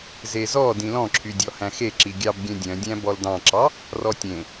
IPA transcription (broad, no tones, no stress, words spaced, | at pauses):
zezɔ dĩlɔ̃ǁʰydʲɔ hæ̃xe ǁiɡʲɑbɡʲœ̃ dʲœ̃dʲæ̃ bɔldɑ̃ǁɑ | rɔtʲẽ